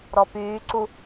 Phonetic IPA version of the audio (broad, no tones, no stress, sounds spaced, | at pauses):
ɾ ɔ p yː ǀ u